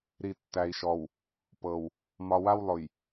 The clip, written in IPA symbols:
ɾi˨tːæ˨i̯ʃɔ˨w | pɤ˨w | mɒ˨wa˦w lˠʊ˨j

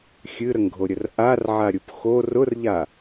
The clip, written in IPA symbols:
xʲɨɾəŋɡʱoɾʲər ʔarʕaɾʲup xo rʊrʎa

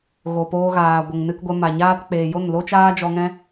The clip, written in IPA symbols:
ɣo˨poː˧ɣaː˨ ɡʷə˨ŋ nɨ˧kɡʷɛ˧ma˨ɲaː˦t k͡peː˨jo˦˨nlo˦ t͡ʃaː˦d͡ʒɔ˧ŋɛ̃˦

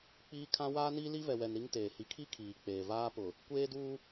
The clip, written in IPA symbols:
k͡piː˦kʰã˦ waː˦ni˦li˦ vɛ˨wɛ˨n ɾi˦ŋteː˨ hi˨kʰi˦ kʰiː˨k͡peː˨ vaː˦pʊ˨ | kʷeː˦duː˦

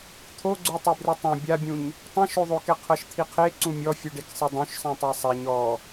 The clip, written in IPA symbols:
t̪ʰoɡ͡ǀu tˤebrɯtˤɛ̃ bʲabʲũɲ | tˤẽʃoðˤokɛ qʰɤʃt̪ʰiqʰe ǀũmʲɔfʲuɖek sˤidˤũʃsˤɛ̃ tˤɛsˤɛɲ ɔ

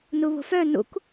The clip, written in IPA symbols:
nuβo̤fœ nṵk

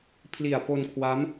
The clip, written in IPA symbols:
pʰli˨˩a̯ po˧nkʰwa˦˥m

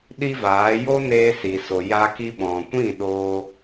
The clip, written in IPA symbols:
ɗi˦vaː˨˦ jo˦neː˧si˨ so˨ja˧ ki˧ɓɔ̃˨kʷĩ˦˨ ɗoː˧

